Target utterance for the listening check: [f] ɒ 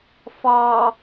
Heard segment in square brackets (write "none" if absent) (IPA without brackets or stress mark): f